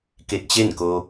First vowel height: mid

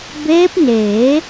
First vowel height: mid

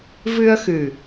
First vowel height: high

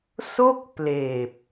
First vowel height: mid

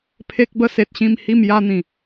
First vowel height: mid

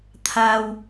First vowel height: low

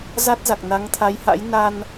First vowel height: low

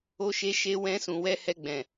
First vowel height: mid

